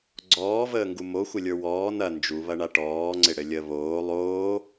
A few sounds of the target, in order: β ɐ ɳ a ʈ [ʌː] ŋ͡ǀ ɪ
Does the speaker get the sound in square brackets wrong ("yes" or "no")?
yes